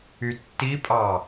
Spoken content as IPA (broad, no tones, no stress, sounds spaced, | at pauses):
y tː i pʼ ɑ